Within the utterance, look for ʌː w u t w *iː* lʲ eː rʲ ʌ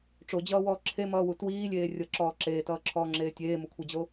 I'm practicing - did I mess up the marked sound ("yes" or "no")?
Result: no